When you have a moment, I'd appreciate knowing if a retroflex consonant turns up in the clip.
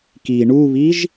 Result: yes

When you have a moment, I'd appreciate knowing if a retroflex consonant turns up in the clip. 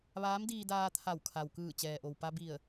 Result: no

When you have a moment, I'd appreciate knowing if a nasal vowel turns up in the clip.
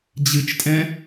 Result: yes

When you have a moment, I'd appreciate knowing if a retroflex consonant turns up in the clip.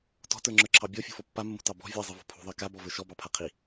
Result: no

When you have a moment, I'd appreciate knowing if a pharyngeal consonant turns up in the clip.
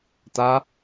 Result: no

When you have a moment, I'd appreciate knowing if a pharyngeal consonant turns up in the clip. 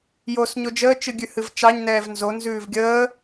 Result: no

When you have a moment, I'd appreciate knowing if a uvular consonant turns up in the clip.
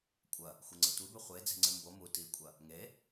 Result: yes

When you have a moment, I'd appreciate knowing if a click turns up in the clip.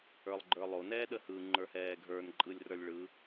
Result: yes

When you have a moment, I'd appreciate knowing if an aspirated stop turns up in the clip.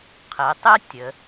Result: yes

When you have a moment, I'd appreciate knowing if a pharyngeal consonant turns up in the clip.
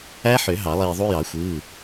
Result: yes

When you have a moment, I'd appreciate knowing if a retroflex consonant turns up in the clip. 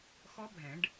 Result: yes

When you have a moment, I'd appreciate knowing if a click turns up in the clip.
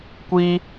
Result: no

